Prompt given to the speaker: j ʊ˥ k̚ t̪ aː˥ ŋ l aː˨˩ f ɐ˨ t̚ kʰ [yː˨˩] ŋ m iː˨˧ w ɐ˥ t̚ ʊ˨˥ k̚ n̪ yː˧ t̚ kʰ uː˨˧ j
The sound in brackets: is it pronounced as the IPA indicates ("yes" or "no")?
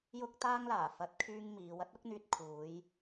no